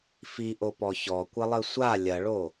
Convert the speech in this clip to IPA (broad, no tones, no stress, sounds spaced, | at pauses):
f i ʔ o p ɔ ç ɔ kʷ ɘ lˠ ɘ sʷ a lʲ ɐ ɭ o